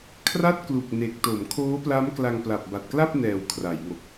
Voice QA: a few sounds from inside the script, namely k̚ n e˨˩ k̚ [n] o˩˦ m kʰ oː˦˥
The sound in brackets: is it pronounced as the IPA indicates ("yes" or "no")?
no